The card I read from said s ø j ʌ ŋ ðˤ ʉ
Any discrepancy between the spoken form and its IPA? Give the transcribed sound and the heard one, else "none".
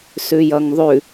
ø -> ʉ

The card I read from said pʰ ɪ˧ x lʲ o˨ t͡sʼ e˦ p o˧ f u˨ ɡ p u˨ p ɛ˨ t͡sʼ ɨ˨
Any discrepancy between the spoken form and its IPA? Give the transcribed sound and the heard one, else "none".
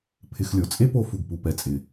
ɨ˨ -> ɪ˨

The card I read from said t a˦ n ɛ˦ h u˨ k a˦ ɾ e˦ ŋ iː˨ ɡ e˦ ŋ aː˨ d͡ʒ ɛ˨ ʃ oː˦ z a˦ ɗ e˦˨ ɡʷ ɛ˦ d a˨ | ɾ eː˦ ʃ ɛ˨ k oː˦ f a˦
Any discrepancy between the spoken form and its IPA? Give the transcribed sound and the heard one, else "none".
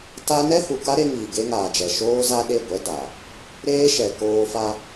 none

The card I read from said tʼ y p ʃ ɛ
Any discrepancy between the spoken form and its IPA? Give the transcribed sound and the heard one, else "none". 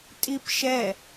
y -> i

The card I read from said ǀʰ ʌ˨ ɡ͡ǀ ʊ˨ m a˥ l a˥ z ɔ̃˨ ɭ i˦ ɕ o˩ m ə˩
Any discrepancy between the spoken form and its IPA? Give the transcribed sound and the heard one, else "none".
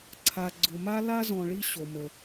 ʌ˨ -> a˨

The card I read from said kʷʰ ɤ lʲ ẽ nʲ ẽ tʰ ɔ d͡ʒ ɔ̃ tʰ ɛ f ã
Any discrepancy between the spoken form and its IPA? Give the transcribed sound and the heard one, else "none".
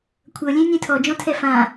none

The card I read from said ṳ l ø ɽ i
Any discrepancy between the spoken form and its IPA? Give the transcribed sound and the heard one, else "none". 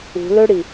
none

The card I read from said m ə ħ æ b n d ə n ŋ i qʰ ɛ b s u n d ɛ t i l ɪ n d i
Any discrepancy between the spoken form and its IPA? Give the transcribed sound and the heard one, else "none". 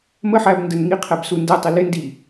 t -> tˤ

